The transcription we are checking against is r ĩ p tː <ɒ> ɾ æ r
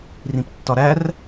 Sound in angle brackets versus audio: correct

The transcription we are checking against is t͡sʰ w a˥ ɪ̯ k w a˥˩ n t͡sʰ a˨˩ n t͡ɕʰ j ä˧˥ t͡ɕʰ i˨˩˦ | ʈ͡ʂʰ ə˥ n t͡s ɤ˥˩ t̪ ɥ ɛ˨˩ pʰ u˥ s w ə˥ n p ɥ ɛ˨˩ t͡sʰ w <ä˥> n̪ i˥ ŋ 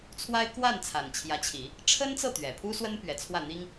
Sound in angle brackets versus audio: incorrect: ä˥˩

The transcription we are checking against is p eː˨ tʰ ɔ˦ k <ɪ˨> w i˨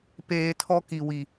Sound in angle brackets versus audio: incorrect: i˨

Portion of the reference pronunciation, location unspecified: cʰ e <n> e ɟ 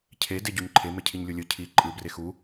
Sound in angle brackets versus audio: incorrect: d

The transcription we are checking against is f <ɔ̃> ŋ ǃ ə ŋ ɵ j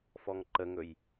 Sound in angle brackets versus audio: incorrect: ɔ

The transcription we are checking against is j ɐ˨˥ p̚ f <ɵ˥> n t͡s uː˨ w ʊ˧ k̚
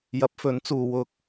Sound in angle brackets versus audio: incorrect: ɵ˨˥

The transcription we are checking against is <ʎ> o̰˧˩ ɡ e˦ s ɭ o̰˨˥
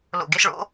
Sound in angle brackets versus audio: incorrect: l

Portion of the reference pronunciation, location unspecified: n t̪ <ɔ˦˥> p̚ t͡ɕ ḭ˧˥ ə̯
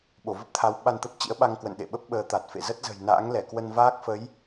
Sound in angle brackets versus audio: incorrect: ə˦˥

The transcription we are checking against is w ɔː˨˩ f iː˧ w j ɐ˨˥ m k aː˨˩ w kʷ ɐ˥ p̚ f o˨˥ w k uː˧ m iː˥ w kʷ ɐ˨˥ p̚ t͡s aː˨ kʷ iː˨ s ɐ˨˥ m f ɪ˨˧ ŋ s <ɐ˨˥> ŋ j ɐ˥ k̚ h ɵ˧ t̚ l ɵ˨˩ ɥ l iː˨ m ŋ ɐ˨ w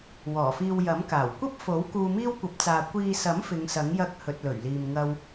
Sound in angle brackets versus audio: correct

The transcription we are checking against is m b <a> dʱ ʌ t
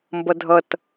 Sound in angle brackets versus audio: incorrect: ʌ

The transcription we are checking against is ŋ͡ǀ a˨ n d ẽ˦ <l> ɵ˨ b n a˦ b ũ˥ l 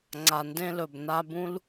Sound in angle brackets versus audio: correct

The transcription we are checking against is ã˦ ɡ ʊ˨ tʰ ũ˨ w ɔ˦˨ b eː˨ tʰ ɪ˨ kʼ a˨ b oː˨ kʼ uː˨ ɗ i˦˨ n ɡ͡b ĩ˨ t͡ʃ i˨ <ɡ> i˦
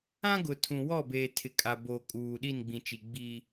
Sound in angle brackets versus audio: incorrect: ɡ͡b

